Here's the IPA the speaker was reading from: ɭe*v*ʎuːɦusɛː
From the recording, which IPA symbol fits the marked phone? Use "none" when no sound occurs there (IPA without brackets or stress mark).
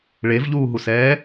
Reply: v